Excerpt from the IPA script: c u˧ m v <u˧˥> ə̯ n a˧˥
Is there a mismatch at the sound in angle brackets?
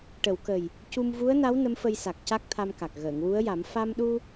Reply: no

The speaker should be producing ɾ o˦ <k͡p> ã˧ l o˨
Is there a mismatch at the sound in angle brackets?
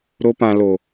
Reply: yes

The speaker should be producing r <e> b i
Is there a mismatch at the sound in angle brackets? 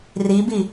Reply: yes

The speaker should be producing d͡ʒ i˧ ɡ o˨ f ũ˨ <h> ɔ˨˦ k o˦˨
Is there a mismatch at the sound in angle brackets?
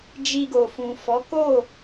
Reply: yes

